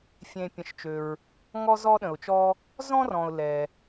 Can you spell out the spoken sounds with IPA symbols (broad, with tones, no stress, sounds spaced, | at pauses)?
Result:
fʲ ẽ˩ pʲ ə̃˩ ʃ t͡ʃ ø˩ ɹ | ŋ ɔ˧ z ɔ˧ ɗ ə̃˩ ʊ̯ t͡ʃ ɔ˧ | z ɔ̃˧ r ɔ̃˩ ʊ̯ l ɛ˩